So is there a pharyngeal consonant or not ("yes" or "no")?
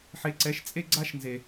yes